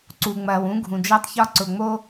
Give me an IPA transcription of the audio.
ǀ u˨ ŋ͡m ɐː˨ w ũ˦ ɡʱ ũ˨ d͡ʒ ɐː˦ tˤ ç ɒ˦ ǀ ʊ˨ ŋ͡m o˦

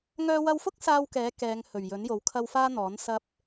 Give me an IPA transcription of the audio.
ŋ œː˧ w ɐ˧ w f ʊ˥ k̚ s aː˥ w k ɛː˨˥ k ɛː˨˧ ŋ h ɵ˨˩ ɥ j ɵ˨˥ n j o˨˥ w kʰ ɐ˥ w f aː˥ n̪ ɔː˨˥ n s ɐ˥ p̚

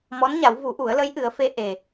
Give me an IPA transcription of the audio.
m ɔ˧˥ n ɲ a˨˩˦ w v u˨˩˦ ʔ u˨˩˦ ə̯ l ə˧˥ j ʔ ɨ˨˩˦ ə̯ f e˧ ʔ e˨˩

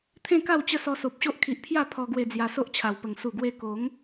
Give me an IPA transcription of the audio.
t̪ʰ ẽ˥˧ k a˥˧ w t͡ɕ ə˦ s ɔ˧ s o˨ p̚ ɕ o˦ ʔ kʰ i˨ ʔ pʰ j a˥˧ pʰ ɔ˧ ɡ w e˧ d͡z j a˧ s o˦ ʔ t͡ɕʰ a˨˩ w p ə˨˩ ŋ s u˨˩ ɡ w e˧ k o˨˦ ŋ

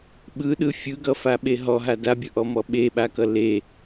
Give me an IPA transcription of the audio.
ɓ ɯ ɗ ɯ fʲ ɯ ɡ ʌ f a ɓ e ɦ ɔ ɦ a d a bʲ ʌ ʔ ɔ m ɔ ɓ e ɓ a k ʌ l e

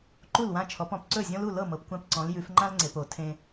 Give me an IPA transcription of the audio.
ǃ u˥˩ l w ã˥˩ t͡ʃʰ ɔ˨˦ p ɔ̃˨˩˦ p ǀ ɵ˥˩ zʲ ɔ̃˦ l u˥˩ l ɤ˥˩ m ɤ˨ p kʷ ã˦ p ǀ ɔ̃˨˦ l j ʉ˨˦ f ŋ͡ǃ ã˦ l ŋ͡ǀ e˨ p o˨˩˦ tʰ ẽ˦

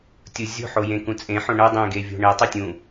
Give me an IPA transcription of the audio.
tʲ u zʲ o̤ ħ o j ẽ k ũ t͡sʼ ẽ ħ õ ɳ ɜ dˤ ẽ ɡ e vʲ o̤ ɳ e tˤ u tʲ ũ

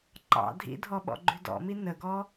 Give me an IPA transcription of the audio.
ǃ ɑ̰ dʱ ḭ dʱ ɔ ɓ ɔ̰ ɡ͡ǃ ʉ d ɔ̰ m i n ə ɡ ɔ

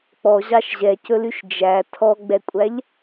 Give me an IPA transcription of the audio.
k͡p ɔ ʑ ɑ ʃ ʑ ɛ c ɵ l y ʃ d͡ʒ æ tʰ ɔ ɡ͡b ɛ kʷʼ æ ʎ

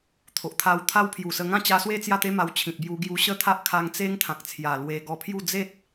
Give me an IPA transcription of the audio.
t̪ʰ o˨ ʔ t̪ʰ a˧ w t̪ʰ a˦ w pʰ j u˨˩ s ə˧ ŋ ã˥˧ t͡ɕ a˧ s w e˥˧ t͡s j a˥˧ t̪ e˦ m a˧ w t͡ɕʰ ĩ˨ t̚ b j u˧ ɡ j u˧ ɕ ə˦ t̪ʰ a˦ ʔ kʰ a˧ ŋ t͡s e˦ ŋ t̪ʰ ã˨ k̚ t͡sʰ j a˨˩ l w e˧ ɡ ɔ˧ pʰ j u˥˧ d͡z e˦ t̚

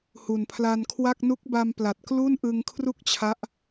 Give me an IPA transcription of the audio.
h u˨˩ n pʰ l a˧ n kʰ w a˥˩ k̚ n u˦˥ k̚ b a˧ m p l a˨˩ t̚ k l u˥˩ n ʔ ɯ˧ ŋ kʰ r u˥˩ k̚ t͡ɕʰ a˦˥ ʔ

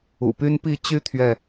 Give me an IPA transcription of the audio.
ṵ˨˩ p y˦ n p i˥˨ t͡ɕ y˦ t̪ʰ ɥ ɛ˨

